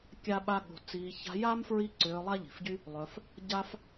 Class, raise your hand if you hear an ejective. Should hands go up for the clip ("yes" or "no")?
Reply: no